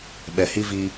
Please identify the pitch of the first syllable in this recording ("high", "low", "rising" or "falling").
low